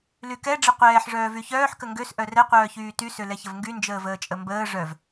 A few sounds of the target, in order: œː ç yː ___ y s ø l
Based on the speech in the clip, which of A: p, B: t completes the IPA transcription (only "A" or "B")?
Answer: B